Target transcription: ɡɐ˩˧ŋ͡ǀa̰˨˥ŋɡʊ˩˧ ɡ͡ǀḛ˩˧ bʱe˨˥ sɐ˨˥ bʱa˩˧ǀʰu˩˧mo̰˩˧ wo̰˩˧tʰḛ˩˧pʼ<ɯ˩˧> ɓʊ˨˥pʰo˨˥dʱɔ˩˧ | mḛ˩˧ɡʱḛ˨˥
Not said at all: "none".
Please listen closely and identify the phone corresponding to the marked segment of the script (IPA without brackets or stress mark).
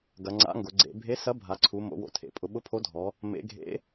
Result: ʊ˩˧